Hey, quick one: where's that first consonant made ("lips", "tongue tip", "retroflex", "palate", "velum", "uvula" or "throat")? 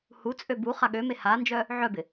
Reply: throat